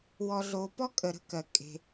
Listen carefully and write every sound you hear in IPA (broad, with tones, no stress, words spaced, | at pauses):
wɔ˨ɮo˨pɔ˥ kʼə˨ɾə̤˥kɜ˩ kʼe̤˩